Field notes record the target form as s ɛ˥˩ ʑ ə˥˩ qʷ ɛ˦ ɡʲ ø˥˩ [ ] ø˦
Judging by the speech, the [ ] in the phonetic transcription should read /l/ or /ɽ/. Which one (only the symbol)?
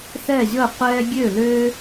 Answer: l